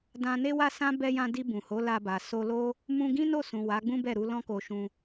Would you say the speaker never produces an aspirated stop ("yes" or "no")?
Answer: yes